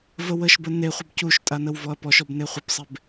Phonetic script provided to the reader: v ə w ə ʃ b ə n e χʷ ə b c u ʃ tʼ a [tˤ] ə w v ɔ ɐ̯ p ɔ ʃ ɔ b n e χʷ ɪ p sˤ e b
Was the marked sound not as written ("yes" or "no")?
yes